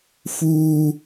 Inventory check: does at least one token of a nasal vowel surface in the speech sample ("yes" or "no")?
no